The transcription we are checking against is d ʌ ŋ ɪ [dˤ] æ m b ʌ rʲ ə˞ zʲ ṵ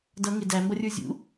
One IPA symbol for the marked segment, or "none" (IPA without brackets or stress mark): d